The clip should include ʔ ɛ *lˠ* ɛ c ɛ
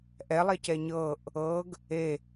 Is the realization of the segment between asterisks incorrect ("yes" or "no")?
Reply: no